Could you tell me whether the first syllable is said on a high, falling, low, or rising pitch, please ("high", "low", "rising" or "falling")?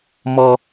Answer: high